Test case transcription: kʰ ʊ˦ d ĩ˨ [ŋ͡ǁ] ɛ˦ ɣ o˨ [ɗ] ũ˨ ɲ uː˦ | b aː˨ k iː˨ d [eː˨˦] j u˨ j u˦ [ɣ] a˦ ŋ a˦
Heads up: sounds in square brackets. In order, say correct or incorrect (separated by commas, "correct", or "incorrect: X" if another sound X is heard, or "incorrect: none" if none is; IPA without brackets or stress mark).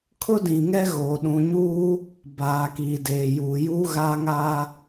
incorrect: ŋ, correct, incorrect: eː˨, correct